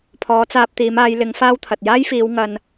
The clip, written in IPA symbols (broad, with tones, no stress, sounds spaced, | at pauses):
pʰ ɔː˨˧ t͡s aː˧ p̚ t̪ iː˨˧ m aː˨˧ j l ɪ˨˧ ŋ f aː˥ w t̪ʰ ɐ˨ t̚ j aː˥ j f iː˨˧ w ŋ ɐ˧ n